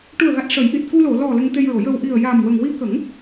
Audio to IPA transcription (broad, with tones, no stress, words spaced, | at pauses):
ʈu˨˩ə̯ɣa˨˩t̚ ʂə˨˩˦jʔi˨˩t̚ ku˧lo˨˩˨ lɔ˨˩ lə˧ŋt̪e˧jɹo˨˩˨ jə˨˩w ʔi˨˩ə̯ja˨˩m wə˨˩ŋwi˧˥kə˨˩˦ŋ